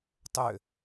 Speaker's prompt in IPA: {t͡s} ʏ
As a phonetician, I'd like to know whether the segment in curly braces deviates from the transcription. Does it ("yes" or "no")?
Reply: yes